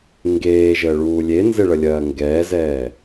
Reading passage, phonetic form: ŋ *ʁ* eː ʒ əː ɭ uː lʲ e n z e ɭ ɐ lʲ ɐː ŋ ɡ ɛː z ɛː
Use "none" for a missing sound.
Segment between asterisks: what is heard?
ɡ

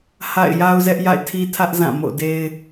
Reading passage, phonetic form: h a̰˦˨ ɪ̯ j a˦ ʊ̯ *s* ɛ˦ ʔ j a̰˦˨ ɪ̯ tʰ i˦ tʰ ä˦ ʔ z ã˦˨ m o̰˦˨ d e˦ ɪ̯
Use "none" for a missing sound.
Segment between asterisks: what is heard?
z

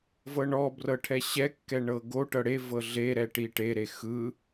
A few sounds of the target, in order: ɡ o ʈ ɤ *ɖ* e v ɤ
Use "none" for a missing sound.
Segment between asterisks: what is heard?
ɽ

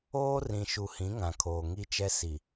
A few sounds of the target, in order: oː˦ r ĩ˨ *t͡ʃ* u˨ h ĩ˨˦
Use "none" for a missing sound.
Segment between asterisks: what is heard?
ʃ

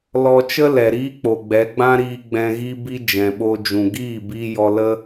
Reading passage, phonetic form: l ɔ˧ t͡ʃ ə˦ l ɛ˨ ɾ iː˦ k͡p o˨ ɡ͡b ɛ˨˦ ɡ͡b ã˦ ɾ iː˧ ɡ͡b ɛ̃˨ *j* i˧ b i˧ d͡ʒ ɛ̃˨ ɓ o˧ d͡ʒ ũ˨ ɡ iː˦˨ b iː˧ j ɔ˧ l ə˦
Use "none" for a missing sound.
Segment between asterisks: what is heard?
ɣ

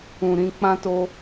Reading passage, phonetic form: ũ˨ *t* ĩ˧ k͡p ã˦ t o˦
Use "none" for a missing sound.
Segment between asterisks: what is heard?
ɾ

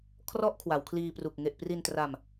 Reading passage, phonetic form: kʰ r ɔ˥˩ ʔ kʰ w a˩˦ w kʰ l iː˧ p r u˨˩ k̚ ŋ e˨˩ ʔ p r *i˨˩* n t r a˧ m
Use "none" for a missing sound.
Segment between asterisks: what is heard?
i˧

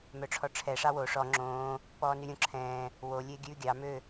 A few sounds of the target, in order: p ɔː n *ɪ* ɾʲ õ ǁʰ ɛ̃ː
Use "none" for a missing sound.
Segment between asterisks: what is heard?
y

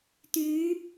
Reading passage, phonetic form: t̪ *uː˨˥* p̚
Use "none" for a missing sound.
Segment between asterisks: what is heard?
yː˨˥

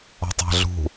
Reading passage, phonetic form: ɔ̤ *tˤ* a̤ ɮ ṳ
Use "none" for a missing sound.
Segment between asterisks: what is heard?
tˤ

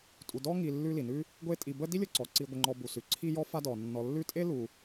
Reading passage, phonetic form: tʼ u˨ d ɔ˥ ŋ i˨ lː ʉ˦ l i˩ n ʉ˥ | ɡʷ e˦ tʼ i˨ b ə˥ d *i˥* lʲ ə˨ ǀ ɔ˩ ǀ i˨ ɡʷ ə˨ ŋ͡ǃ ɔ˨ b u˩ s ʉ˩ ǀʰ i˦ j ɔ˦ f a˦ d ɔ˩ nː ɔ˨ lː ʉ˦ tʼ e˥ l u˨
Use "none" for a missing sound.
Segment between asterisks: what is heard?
i˥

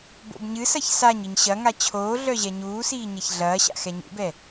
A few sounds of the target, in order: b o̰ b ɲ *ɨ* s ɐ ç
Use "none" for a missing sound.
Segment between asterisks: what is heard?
ɨ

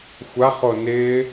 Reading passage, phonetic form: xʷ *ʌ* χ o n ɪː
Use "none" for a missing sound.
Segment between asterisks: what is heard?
a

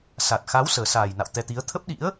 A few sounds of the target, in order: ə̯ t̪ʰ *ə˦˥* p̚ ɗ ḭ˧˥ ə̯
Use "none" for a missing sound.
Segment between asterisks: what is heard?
ə˦˥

